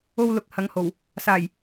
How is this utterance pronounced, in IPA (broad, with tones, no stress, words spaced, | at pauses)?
o˥wlʊ˧k̚ hɐ˨˧ŋho˨˩w | saː˨˩j